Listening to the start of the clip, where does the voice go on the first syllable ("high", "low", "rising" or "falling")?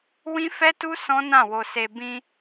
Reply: high